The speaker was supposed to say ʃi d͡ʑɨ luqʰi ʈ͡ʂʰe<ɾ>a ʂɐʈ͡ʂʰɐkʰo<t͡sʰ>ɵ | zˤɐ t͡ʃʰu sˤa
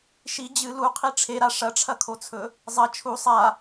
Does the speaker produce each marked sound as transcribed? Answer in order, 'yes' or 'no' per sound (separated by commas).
yes, yes